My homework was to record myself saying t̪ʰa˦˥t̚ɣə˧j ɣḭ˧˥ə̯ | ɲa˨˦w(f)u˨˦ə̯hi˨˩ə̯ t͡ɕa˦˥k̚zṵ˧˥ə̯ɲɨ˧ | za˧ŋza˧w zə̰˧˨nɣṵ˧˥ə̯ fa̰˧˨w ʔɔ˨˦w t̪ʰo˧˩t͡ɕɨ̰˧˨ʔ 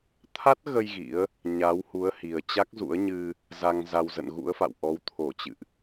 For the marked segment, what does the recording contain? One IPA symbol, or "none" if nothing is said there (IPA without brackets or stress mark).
h